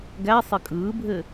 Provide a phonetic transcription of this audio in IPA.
ɡæ sˤɘkʼɯːbʱɘ

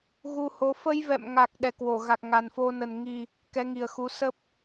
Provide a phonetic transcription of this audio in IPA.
ɣu˧ho˨˦ fə˧jvɛ̰˧˨mŋa˨˩k̚ ɗɛ˨˩kwo˧˩ ɣa˨˩k̚ŋa˨˩nfo˧nə˨˩n ŋi˨˩ | kɛ˨˦ŋi˨˩ə̯xu˨˦ sə˦˥p̚

